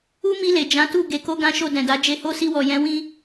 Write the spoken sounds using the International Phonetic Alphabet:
u˦mi˧le˨ d͡ʒã˨˦tu˦˨ ɡe˨˦ko˦ɡã˦ʃo˦˨ dɛ̃˨da˨˦ d͡ʒe˧ho˦ si˧wɔ˨ jɛ̃˨˦ wĩ˧

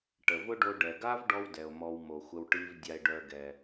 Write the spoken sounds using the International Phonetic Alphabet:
ʈə˩vʊ˥ ɖo˧ɖɛ˩ɡa˥v ɖɔ˥wdɛ˩o̯ mɔ˧wmo˩xʷə˧w ʈi˧v dʲa˧e̯ɖœ˧ɡɛ˩

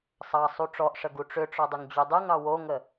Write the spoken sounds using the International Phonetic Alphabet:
sˤɑsˤu ʈ͡ʂɔʔʂə ɡuʈ͡ʂʏʈ͡ʂɔ dˤʏŋd͡ʑudˤəŋɑ woŋə

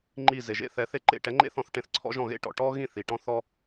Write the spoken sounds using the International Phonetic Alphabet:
ŋ͡ǃi˥˨ze˨ʒḛ˥ θɛ˧˥θe˥ǃḛ˥˨ ʈɛ˧˥ŋ͡ǃḛ˥θɔ̃˧˥θ ʈẽ˧˥θǀʰɔ̰˥ ʒɔ̃˥˨ ɣḛ˥ʈɔ̰˨ ʈɔ˥ɣĩ˥˨ θi˨ʈɔ̃˥θɔ˥

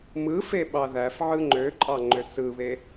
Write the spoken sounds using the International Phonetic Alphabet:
mɯfe ɓɑðæf ʕɯŋ͡ǃøǃʼɑ ŋ͡ǃøsɯβe

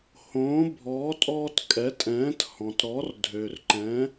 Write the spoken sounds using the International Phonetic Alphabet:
hõː˩˥bʱɔː˩˥ tʼɔː˧tkʼɛ˩˥tʼɛ̃ː˩˥t hɔ̃˩tɾɔ˩˥r dʱø˩rǃɛ̃˩˥

